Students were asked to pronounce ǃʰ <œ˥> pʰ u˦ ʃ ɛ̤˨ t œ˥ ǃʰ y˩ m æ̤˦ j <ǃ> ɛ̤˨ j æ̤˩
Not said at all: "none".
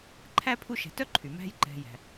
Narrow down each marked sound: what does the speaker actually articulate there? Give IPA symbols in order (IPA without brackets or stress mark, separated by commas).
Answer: æ˥, ǃ